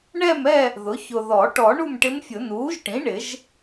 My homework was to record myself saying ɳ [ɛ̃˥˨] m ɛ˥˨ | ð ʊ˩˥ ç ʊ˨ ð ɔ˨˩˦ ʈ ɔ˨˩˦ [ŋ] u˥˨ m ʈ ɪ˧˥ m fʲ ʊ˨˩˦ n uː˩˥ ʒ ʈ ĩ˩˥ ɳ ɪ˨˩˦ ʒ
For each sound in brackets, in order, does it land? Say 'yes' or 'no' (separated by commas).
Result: no, no